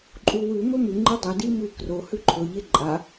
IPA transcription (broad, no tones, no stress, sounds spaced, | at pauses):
ǃʼ u w ʉ m ɵ m ʉ ŋ͡ǃ ɨ dˤ ɵ d i m ʉ k r o h ʉ ǃʰ ɵ ʎ e ǃʼ a